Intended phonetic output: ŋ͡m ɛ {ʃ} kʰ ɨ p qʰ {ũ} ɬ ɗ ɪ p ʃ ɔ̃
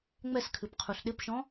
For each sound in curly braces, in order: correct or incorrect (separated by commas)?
incorrect, incorrect